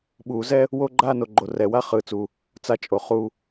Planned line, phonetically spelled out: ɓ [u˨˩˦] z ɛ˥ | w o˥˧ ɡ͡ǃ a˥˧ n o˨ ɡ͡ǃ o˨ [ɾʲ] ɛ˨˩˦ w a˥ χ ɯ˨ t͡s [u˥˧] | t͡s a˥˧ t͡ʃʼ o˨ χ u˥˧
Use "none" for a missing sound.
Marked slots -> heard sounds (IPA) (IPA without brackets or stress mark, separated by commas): u˨˩˦, r, u˨